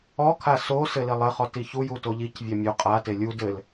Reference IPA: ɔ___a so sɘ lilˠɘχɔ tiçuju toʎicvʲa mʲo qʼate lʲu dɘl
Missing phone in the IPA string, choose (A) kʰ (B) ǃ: A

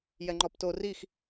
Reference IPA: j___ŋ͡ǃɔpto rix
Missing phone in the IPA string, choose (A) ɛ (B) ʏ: A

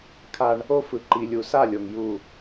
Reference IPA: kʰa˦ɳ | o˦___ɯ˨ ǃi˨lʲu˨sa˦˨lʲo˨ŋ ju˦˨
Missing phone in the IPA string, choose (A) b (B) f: B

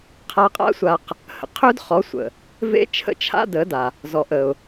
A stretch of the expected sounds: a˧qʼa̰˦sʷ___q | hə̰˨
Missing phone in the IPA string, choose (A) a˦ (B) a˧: B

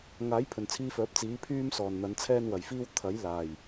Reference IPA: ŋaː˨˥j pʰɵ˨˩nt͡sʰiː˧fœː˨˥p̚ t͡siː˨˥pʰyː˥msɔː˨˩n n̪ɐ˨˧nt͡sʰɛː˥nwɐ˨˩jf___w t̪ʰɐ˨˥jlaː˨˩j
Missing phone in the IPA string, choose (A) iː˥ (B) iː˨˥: A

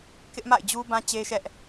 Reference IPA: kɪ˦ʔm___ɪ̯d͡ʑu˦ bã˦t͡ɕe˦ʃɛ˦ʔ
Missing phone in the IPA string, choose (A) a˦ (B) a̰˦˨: B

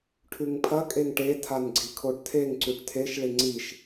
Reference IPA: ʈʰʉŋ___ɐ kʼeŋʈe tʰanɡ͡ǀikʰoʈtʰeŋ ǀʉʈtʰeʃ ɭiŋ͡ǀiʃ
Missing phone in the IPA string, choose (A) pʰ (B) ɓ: A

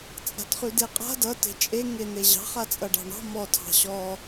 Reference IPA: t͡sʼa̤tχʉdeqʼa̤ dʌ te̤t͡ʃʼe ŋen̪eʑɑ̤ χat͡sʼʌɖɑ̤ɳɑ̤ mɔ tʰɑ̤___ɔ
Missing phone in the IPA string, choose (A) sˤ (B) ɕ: B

